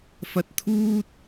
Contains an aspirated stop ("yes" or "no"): yes